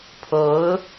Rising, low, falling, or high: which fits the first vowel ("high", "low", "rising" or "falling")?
rising